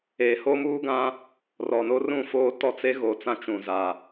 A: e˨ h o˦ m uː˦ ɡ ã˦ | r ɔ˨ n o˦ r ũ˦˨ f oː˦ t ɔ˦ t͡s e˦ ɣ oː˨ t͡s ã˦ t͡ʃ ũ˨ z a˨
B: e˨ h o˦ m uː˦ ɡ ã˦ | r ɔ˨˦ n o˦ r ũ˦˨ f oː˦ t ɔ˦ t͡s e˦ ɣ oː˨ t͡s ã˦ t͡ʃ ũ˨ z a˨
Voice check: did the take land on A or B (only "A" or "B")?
A